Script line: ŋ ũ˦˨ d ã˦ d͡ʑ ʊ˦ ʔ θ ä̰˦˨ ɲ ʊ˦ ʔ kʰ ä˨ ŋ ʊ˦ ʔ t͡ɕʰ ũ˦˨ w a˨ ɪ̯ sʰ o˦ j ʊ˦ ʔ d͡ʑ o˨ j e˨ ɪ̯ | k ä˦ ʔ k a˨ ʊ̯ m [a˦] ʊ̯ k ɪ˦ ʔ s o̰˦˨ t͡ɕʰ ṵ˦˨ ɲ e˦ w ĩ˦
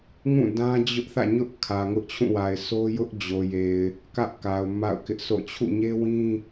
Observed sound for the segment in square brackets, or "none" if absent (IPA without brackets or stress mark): a̰˦˨